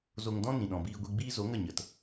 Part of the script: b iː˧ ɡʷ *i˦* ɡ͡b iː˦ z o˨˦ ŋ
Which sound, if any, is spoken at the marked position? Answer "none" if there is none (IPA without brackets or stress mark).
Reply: i˧